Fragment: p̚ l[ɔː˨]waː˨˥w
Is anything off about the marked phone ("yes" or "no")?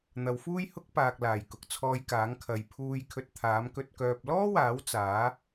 yes